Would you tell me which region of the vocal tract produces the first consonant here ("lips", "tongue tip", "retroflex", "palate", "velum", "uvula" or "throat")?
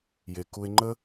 palate